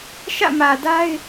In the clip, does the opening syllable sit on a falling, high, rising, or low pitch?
falling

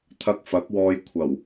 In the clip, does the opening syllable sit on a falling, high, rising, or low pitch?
high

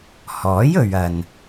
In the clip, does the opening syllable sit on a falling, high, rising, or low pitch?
rising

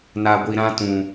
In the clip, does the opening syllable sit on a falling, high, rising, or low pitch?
low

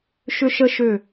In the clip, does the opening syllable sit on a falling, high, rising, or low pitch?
high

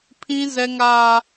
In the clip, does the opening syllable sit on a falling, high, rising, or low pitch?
high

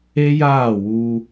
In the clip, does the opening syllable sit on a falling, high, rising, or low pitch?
high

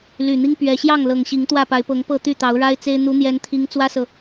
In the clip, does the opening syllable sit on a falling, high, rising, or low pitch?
low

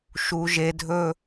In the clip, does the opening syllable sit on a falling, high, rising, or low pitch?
low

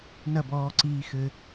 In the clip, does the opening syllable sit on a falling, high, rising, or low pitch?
falling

